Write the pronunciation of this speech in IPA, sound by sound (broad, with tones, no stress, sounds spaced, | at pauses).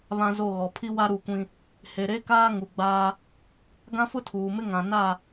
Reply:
β ã˦ z o˦˨ ɣ ɔ˨ pʰ i˦ w a˦ ɾ u˦˨ kʷ ĩ˦ | h e˨ ɾ e˦ k aː˦ ŋ u˨ ɡ͡b aː˦ | ɡ ã˦ f ʊ˦ tʰ uː˨ m ɪ˦ ŋ ã˨ n a˦˨